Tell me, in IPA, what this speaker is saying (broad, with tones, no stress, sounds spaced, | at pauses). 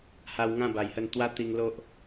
h a˧ w ŋ ã˥˧ b a˨˩ j h ə˥˧ n t̪ w a˦ t̪ i˧ ŋ l o˦ ʔ